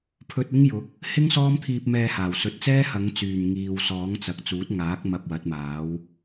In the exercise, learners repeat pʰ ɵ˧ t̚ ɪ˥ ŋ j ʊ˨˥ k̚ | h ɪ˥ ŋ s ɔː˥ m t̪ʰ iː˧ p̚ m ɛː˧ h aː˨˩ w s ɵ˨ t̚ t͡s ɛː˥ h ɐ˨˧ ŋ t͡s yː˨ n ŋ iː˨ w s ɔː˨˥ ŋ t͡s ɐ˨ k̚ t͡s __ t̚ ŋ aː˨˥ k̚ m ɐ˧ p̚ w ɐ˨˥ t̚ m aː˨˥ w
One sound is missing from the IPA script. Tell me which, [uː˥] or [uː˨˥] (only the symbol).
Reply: uː˨˥